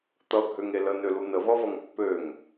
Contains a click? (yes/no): no